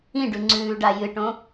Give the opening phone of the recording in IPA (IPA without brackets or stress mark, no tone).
ĩ